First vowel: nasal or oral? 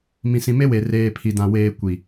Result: nasal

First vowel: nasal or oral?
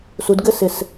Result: oral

